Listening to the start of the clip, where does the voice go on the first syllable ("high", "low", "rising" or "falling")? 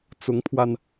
rising